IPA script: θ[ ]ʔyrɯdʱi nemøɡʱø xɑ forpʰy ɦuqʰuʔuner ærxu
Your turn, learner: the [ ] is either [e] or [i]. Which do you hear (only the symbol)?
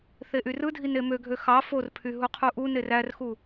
e